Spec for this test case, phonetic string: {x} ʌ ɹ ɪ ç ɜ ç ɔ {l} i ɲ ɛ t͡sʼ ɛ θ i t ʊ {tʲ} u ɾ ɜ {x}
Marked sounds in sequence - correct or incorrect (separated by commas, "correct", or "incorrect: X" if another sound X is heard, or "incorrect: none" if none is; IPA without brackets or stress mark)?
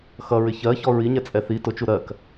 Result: correct, incorrect: ɹ, incorrect: t͡ʃ, incorrect: k